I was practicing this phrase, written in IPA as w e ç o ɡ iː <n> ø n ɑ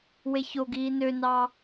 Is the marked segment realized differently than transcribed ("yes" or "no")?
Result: no